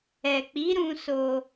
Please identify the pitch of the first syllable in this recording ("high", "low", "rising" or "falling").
low